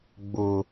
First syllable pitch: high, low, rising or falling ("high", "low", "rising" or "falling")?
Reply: low